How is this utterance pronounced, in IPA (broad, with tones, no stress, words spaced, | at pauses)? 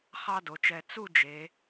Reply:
χɑ˥do˩˧t͡ʃɛ˧ t͡su˥˧d͡ʒe˩˧